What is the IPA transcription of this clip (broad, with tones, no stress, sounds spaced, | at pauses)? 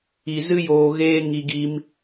i˧ z ɨ˦ j oː˧ ɣ eː˦ ŋ i˧ ɡ i˧ m